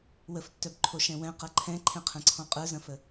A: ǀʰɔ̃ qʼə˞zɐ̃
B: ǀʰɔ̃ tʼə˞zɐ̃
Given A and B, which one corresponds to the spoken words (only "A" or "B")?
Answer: A